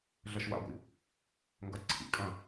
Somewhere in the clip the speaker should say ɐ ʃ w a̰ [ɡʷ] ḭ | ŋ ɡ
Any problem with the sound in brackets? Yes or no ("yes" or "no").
no